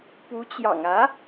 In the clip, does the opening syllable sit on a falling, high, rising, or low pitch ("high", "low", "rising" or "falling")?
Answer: rising